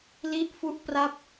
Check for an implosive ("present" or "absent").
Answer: absent